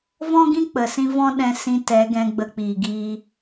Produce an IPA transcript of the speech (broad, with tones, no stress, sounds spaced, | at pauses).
v ɔ̃˦ ɡ ĩ˦ k͡p ə˨ s ĩ˧ v ɔ̃˦ ɗ ɛ̃˧ s ĩ˧ t ɛ˨˦ ɡ ɛ̃˧ ɡ͡b ə˧ k͡p iː˨ ɡ iː˧